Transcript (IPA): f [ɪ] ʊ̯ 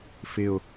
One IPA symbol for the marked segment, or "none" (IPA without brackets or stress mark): ɪ